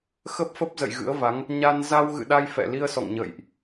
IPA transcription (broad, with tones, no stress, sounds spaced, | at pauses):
x ə˦˥ p̚ f ə˦˥ p̚ z ə̰˧˨ j ɣ ɨ̰˧˥ ə̯ v a˨˦ ŋ | ɲ a˧ n z a˧ w ɣ ɨ̰˧˨ ɗ a˧ j f ɛ̰˧˨ l i˧ ə̯ s ɔ̰˧˨ ŋ ɲ ə̰ː˧˨ j ʔ